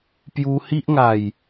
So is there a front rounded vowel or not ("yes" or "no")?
no